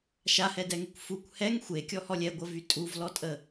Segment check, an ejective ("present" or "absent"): present